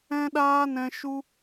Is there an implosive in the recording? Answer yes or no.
yes